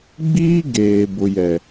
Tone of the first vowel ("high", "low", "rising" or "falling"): high